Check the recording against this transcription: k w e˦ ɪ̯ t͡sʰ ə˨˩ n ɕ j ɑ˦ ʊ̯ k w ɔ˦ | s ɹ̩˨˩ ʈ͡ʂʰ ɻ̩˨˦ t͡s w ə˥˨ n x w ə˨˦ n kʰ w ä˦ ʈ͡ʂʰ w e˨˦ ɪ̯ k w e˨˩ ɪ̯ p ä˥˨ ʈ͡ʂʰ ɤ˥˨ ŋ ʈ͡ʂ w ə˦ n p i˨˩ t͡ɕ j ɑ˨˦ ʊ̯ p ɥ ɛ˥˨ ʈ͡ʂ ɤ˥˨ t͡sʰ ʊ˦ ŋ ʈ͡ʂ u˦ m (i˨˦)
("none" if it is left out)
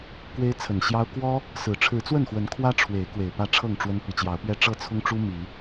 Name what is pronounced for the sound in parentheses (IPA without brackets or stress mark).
i˨˦